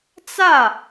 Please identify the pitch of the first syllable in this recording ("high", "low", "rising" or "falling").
falling